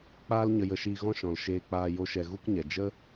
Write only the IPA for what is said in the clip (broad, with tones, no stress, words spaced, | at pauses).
k͡paː˦l ɲə˧jə˧ʃiː˧ɣɔ̃˦ ʃɔ̃˨lʃeː˧k͡paː˧ jo˦ʃɛ˧ ɣu˦kɲɛ˨ d͡ʒə˦